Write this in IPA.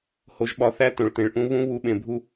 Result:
h o˩˧ ʒ ɓ ɒ˩˧ θ æ˧ t õ˩ ɭ t ẽ˩ ɭ ʔ ũ˧ β ũ˧˥ β u˩˧ ɓ ẽ˩ bʱ u˧

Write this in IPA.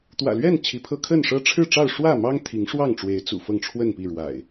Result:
t̪ w ä̰˨˩ l ɥ ɛ˥˨ n t͡ɕʰ i˨˦ pʰ ɤ˦ kʰ ə˥˨ n ʂ ɤ˦ ʈ͡ʂʰ ɻ̩˥˨ ʈ͡ʂ ɑ˥˨ ʊ̯ ʂ w ä˥˨ m ɑ˦ ŋ t̪ʰ i˨˦ ŋ ʂ w ɑ˥˨ ŋ ʈ͡ʂ w e˨˦ ɪ̯ t͡s ṵ˨˩ f ɤ˥˨ ŋ ʈ͡ʂʰ w ə˥˨ n p i˥˨ ɻ w a̰˨˩ ɪ̯

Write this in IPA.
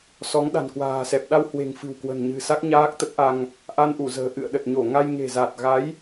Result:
s ɔ˨˦ ŋ ɗ a̤˨˩ n k w a̤ː˨˩ s ɛ˨˩ p̚ ɗ a˧ w h w e̤˨˩ ŋ f ɨ̤˨˩ w k w ə̤˨˩ n ɲ ɨ̤˨˩ s a˦˥ k̚ ɲ aː˦˥ k̚ t̪ ə˦˥ t̚ ʔ a˧ ŋ | ʔ a˧ n ʔ u˧˩ z ə̤ː˨˩ ʔ ɨ̰˧˨ ə̯ ɗ ə˨˩ t̚ ɲ o˧˩ ŋ a˧ j ŋ e̤˨˩ z a˨˩ t̚ ɣ a˨˦ j

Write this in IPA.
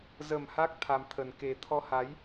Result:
z ə˨˩ m h aː˦˥ k̚ t̪ʰ a˨˩ m t̪ʰ ə˨˩ n k e˨˩ t̪ʰ ɔ˧ h a˨˦ j

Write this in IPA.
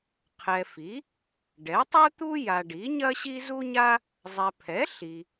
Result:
qʰ ɛ˨ f i˩˥ | ɖ ɛ˩˥ tˤ u˥ t̪ u˥ j a˨ ɖ i˩˥ ɲ ɐ˥ ɕ i˥ z u˥ ɲ a˥ | zˤ ɛ˨ pʰ ɛ˩˥ ɬ i˨

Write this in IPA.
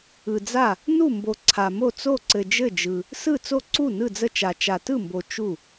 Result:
ɯ˨ d͡z a˥˩ | n u˥˩ m b o˨ ǀʰ a˨ m o˥˩ t͡s o˥˩ ǀ ɘ˨ d͡ʒ ɘ˥˩ d͡ʒ ɯ˨ | s ɯ˥˩ t͡s o˥˩ ǀ u˥˩ n ɯ˥˩ d͡z ə˥˩ t͡ʃ a˨ t͡ʃ a˨ t ɯ˥˩ m b o˨ t͡ʃ u˥˩

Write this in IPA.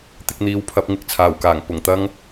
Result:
t̪ ɪ˧ k̚ n̪ iː˨˥ w pʰ ɐ˨˥ p̚ ŋ ɪ˧ k̚ t͡sʰ aː˨˩ w k aː˨˩ ŋ p ʊ˨˩ ŋ t̪ ɐ˥ ŋ

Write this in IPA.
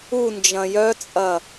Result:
u n d͡ʒ ɐ̃ j œ t͡sʼ ɐ

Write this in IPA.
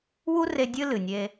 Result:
w u˦ r e˧ dʲ ɨ˦ l ɨ˨ nʲ e˧

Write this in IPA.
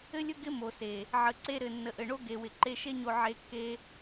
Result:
ɘ˦ lʲ ɵ˦ ɡ ɪ˦ m o˨ s e˨ | ʕ ə˨ ǀ e˧ ɾ ɘ˨ nː ə˨ ʔ ɘ˨ ɳ o˦ ɡ e˨ w ɪ˨ ǃ e˧ ʃ e˦ ɲ o˧ ʕ e˧ kː e˦

